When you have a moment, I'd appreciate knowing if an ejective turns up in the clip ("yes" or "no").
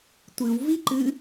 no